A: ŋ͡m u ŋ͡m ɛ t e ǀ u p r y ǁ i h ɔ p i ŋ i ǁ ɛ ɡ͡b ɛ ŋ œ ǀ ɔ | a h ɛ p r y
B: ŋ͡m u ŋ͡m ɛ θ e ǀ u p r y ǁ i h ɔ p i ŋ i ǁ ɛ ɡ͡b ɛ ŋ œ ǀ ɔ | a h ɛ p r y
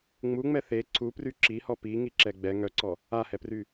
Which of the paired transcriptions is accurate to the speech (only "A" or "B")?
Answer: B